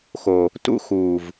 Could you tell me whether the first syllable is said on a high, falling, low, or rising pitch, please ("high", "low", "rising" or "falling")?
low